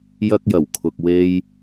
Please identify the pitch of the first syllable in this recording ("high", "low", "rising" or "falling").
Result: high